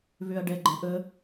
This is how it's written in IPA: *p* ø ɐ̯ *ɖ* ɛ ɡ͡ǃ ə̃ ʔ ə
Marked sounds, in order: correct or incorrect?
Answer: incorrect: β, correct

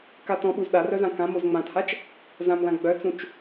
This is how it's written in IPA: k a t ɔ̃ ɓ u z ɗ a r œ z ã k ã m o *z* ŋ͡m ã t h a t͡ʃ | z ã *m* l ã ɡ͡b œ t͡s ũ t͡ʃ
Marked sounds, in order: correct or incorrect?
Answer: correct, correct

